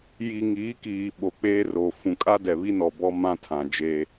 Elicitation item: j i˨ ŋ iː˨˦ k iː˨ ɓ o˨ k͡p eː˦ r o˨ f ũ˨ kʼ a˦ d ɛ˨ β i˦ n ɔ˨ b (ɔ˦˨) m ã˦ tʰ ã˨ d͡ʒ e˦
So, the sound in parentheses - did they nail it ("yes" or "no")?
no